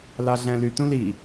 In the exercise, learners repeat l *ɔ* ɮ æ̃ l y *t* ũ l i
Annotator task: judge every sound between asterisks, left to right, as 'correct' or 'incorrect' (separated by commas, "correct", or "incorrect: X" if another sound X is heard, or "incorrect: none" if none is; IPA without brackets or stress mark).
incorrect: ɑ, correct